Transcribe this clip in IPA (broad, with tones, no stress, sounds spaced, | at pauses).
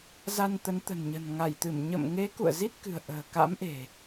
z a˧ n t̪ ə˨˦ n t̪ ə̤˨˩ n ɲ ə̤˨˩ n ŋ a˧˩ j t̪ ɨ˧˩ m ɲ ə̰˧˨ m ŋ e˨˦ k ṵ˧˨ ə̯ z i˦˥ t̚ k ɨ̤˨˩ ə̯ ʔ ə̤ː˨˩ k a̰˧˥ m ʔ e̤˨˩